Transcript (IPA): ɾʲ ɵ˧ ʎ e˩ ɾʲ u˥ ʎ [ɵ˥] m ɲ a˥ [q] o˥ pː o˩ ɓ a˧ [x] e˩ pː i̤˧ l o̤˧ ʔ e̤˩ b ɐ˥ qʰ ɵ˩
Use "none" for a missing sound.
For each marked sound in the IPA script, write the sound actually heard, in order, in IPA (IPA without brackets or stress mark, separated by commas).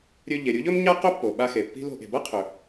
ɵ˥, q, x